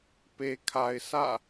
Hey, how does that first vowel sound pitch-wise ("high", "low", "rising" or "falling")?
low